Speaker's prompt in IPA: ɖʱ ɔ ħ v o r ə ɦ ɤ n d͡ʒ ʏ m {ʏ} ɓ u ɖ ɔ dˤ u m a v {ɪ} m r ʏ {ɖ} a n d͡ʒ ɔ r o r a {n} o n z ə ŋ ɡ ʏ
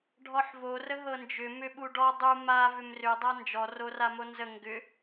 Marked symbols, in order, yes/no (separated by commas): yes, no, no, no